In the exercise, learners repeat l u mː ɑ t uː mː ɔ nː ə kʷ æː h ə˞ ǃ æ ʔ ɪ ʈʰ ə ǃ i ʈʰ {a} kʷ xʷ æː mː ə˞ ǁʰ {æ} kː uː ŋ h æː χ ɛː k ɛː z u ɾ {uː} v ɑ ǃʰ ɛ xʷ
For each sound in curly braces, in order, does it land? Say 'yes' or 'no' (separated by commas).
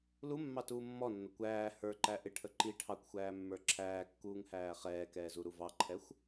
no, no, no